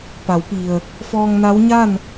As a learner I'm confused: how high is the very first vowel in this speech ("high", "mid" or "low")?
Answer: low